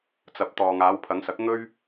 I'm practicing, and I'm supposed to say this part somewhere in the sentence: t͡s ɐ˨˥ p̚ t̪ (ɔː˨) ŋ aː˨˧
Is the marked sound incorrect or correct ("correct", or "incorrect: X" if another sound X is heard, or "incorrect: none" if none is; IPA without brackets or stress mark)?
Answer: correct